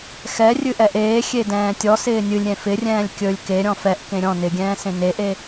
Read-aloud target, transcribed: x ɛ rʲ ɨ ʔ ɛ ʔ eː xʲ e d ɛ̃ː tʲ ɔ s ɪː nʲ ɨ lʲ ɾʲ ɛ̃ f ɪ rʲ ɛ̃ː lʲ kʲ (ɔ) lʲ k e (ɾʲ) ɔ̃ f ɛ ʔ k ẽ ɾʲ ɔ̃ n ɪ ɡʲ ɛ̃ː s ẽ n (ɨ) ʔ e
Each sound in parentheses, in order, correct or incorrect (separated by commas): incorrect, correct, incorrect